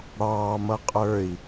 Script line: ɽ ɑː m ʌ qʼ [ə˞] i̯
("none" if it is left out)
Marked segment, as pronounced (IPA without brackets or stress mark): ə˞